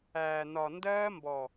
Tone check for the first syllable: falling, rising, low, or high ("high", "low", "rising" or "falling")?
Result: low